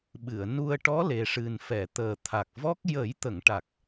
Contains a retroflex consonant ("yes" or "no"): yes